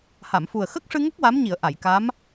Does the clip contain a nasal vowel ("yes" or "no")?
no